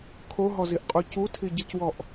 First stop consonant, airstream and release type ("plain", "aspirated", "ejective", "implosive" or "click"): aspirated